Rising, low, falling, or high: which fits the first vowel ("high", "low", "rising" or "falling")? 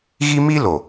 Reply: high